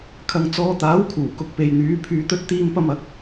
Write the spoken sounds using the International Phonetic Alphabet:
kʰɐ˨ŋt͡sɔː˨˧t̪aː˨˥wkʰuː˨˩ kʊ˨k̚pe˨jn̪yː˨˥ pʰyː˨˧t̪ɵ˧t̚t̪iː˧mpɐ˧m ɐ˨˥k̚

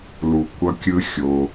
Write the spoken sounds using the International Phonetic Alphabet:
lu˨kʷʌ˧ kʲɯ˦xʲo˧

